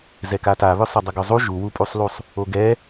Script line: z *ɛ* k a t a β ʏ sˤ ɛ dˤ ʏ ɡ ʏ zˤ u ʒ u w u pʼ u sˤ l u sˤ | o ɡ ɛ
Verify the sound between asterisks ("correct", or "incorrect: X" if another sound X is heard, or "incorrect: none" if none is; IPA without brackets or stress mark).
correct